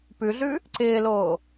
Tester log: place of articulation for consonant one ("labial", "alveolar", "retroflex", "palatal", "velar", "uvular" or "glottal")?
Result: labial